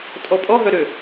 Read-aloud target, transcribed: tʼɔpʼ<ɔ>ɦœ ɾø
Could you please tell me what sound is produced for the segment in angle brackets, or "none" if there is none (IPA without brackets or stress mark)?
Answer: ɔ